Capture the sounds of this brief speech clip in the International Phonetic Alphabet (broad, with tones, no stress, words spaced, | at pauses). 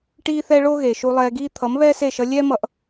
ʈiː˦θɛ˦ɭo˦ɣe˨ ʃu˧lˠɛː˧ɡiː˦ t̪ʰʌ˨˦mβɛː˦se˦˨ʃʌ˧ lʲɛː˦mʌ˧ʔ